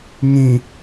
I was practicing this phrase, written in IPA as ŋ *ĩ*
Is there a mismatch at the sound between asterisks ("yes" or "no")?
no